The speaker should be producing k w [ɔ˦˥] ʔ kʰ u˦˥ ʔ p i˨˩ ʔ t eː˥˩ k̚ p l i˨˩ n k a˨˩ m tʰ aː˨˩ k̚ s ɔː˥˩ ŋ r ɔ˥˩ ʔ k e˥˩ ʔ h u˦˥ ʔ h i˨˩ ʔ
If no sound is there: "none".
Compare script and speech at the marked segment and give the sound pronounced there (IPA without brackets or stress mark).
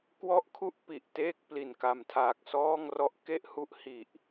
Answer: ɔ˦˥